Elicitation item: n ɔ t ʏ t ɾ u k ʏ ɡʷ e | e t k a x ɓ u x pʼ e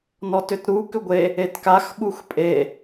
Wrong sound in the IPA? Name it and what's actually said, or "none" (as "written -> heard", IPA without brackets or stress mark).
none